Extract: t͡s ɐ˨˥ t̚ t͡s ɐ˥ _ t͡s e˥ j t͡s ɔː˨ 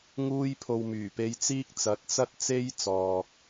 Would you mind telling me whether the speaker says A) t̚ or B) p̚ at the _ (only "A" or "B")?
A